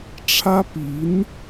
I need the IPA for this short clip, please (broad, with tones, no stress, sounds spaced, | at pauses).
ʈ͡ʂʰ ä˥ p i˧˥ n